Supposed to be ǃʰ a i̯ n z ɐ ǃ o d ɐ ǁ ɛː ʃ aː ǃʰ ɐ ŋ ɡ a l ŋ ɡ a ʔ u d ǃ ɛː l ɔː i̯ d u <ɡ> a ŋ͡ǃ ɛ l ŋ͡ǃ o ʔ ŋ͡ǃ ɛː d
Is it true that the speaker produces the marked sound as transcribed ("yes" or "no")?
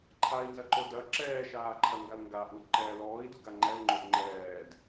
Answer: yes